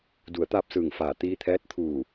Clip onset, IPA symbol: d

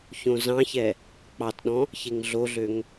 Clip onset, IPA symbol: ç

